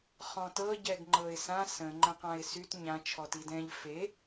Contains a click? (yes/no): yes